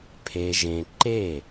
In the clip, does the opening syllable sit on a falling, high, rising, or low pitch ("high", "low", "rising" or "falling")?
low